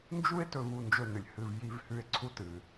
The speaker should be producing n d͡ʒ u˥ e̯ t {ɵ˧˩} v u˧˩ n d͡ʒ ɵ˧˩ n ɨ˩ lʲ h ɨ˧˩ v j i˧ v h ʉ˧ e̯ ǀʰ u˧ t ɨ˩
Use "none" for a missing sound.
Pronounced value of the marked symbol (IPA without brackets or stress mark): ɵ˧˩